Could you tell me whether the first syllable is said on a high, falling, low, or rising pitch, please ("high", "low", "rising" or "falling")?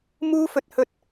high